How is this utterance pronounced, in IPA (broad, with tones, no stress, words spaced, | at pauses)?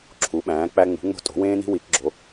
ǁʰu˩˥ɓæ̃ː˩˥ k͡pæ˥ ŋ͡mṳ˩˥ŋ͡mo̤˥ tʼo̤˩˥ wẽː˥ni̤˥ wi˩˥kɡ͡ǁo˩˥